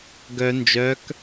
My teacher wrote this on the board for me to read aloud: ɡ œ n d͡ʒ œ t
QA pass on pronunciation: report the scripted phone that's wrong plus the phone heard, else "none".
t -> k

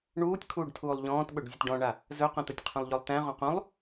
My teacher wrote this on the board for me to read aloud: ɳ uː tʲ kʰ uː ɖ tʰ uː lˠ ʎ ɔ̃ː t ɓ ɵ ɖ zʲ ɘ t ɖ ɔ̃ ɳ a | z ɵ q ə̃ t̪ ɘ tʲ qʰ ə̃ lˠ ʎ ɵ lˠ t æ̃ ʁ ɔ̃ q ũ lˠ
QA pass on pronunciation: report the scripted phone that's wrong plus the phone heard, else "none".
none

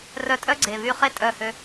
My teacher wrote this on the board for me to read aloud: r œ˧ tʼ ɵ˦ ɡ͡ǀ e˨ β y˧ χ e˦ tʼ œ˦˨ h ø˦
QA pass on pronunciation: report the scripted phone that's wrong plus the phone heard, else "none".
ɵ˦ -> œ˦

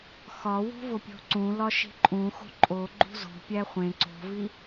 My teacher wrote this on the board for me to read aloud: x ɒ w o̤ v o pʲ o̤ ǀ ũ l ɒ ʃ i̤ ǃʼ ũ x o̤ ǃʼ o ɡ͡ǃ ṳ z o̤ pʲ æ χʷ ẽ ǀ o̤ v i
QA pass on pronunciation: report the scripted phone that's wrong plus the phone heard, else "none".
none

